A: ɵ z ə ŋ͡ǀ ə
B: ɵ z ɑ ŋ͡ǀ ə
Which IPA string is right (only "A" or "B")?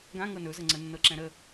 A